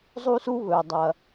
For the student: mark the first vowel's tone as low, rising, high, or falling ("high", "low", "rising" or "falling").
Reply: high